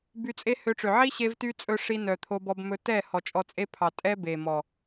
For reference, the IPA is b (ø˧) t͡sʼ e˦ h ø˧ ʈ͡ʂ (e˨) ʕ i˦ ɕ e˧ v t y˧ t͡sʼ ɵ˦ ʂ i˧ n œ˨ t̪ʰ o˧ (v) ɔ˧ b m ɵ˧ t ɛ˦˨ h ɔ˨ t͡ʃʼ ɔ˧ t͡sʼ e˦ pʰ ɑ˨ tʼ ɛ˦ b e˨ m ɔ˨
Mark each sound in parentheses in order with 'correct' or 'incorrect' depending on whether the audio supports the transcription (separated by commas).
incorrect, incorrect, incorrect